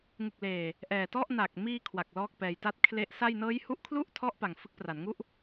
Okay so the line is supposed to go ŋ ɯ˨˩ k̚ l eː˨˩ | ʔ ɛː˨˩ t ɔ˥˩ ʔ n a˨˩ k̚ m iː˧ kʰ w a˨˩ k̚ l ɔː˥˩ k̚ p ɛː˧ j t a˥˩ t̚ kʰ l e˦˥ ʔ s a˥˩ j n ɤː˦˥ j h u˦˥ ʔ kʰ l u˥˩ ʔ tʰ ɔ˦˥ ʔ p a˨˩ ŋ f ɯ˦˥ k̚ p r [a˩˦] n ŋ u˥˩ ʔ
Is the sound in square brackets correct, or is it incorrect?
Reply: correct